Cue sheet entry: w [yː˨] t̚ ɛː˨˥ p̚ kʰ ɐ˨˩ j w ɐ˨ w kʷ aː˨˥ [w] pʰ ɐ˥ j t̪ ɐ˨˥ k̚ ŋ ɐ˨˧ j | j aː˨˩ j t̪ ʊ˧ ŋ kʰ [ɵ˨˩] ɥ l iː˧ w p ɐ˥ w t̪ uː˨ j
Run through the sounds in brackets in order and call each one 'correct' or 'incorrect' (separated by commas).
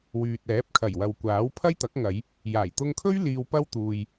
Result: correct, correct, incorrect